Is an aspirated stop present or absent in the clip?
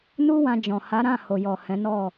absent